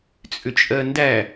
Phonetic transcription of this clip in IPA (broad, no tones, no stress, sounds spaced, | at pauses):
t͡sʼ ʏ t͡ʃʼ ɜ n d æ